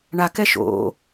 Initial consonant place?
retroflex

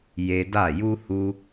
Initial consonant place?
palatal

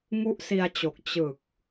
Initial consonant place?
velar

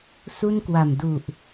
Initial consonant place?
alveolar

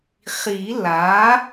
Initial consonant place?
uvular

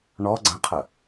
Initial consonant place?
retroflex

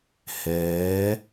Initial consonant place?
glottal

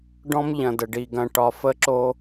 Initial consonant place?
retroflex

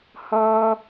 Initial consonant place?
glottal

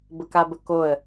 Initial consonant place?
labial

